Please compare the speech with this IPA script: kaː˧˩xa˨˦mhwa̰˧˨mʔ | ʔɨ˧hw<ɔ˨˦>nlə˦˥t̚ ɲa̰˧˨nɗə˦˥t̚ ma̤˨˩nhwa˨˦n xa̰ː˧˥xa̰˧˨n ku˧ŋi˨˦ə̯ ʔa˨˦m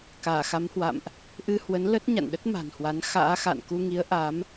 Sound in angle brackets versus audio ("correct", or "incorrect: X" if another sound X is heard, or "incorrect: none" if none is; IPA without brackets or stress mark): incorrect: ə˨˦